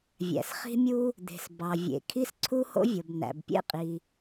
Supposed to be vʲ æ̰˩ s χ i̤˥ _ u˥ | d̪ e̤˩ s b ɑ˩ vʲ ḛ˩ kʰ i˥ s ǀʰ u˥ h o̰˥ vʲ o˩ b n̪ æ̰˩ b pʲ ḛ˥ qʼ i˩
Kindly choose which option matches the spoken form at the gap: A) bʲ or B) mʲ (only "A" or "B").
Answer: B